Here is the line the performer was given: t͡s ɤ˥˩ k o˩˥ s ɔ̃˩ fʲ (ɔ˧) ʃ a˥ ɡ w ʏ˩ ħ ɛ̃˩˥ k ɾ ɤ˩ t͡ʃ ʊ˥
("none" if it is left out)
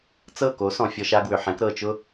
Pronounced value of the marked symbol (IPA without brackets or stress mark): ɔ˧